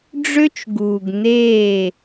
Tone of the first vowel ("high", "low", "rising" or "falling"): high